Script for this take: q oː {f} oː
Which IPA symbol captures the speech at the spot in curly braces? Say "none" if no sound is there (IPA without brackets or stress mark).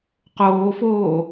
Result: f